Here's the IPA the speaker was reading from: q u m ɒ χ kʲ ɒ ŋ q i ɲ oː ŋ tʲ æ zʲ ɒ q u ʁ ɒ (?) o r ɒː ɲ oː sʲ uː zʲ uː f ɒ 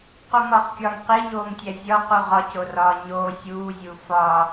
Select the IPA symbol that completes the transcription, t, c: c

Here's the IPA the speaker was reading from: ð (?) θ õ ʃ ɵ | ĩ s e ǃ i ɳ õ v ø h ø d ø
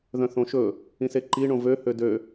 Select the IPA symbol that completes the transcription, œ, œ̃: œ̃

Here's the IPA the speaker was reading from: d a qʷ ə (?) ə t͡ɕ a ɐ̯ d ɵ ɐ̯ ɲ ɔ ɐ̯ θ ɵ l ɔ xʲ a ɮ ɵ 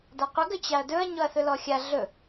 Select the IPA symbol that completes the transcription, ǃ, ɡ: ɡ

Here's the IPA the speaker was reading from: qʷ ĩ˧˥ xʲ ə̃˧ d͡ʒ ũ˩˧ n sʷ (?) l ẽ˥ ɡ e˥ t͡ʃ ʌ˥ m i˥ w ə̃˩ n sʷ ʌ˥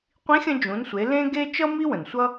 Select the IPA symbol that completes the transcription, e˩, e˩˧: e˩˧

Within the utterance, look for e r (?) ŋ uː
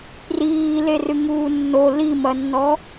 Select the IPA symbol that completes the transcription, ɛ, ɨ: ɨ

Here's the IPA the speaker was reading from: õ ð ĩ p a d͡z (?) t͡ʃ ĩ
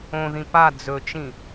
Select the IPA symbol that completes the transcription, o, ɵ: ɵ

